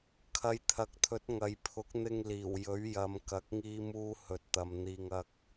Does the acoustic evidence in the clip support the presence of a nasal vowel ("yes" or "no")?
no